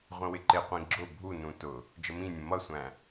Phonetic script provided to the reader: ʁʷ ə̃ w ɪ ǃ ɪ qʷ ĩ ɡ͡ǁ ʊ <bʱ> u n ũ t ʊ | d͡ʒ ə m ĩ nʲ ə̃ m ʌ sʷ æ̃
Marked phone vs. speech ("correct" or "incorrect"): correct